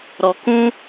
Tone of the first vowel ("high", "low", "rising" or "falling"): low